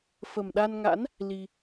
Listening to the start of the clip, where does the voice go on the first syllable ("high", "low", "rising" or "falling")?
low